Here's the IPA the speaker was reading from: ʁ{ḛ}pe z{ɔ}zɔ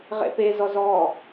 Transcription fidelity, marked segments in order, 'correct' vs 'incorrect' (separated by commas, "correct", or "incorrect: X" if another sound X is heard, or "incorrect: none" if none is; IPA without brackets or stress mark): correct, correct